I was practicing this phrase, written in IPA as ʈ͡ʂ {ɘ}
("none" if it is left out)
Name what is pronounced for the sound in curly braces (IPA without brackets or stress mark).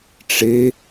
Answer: e